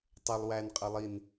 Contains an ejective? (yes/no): yes